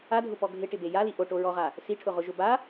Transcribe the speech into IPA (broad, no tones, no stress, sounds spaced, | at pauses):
a dʱ ʊ p ɔ ɡʱ ɪ ʈ ɪ b e j a l i ʔ o ʈ o ɹ ɔ ʁ a | s i ʈʰ ʊ ʁ ʊ ʒ ʊ b a